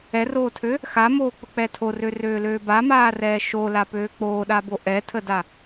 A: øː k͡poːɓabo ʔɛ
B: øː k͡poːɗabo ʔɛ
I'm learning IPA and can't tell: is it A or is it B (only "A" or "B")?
B